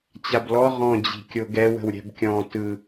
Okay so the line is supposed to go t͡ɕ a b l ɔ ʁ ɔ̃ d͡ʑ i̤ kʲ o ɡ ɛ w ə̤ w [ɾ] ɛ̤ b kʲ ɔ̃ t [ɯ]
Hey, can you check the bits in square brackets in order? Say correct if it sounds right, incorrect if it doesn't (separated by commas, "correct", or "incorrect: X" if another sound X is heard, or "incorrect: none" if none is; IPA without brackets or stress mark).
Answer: incorrect: ɾʲ, correct